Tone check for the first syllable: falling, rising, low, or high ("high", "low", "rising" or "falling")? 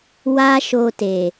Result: high